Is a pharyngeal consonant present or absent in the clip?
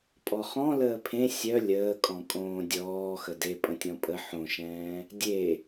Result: present